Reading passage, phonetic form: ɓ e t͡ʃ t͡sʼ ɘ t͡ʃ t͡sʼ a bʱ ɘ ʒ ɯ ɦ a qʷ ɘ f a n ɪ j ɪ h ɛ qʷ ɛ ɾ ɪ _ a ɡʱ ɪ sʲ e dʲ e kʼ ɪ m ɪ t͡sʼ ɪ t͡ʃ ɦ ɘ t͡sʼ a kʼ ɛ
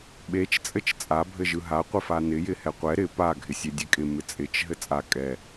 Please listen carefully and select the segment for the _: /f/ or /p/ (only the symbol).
p